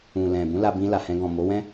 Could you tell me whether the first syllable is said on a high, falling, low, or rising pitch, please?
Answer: low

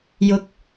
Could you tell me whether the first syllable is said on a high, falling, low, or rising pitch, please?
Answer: rising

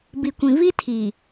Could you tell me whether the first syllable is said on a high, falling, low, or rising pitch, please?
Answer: low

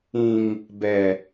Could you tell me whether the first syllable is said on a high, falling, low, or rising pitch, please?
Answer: low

